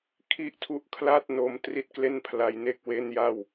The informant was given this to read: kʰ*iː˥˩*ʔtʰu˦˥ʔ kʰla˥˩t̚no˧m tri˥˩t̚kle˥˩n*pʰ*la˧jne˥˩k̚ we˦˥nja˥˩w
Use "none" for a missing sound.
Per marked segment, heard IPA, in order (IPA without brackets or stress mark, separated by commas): i˥˩, pʰ